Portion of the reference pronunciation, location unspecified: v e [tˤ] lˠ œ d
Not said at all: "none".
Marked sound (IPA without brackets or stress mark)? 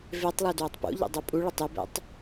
tˤ